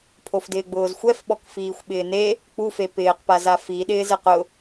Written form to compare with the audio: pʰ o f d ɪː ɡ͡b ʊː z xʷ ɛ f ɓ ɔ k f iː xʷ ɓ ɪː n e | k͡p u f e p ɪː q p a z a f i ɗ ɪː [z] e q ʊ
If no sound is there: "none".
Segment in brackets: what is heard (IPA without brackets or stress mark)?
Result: z